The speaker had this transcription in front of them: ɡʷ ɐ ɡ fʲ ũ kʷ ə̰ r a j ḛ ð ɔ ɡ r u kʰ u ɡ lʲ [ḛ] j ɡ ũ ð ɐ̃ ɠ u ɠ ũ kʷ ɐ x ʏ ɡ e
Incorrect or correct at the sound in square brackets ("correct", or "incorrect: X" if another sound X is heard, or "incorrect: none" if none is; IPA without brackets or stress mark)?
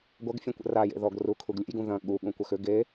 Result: correct